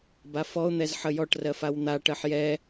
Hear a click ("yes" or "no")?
no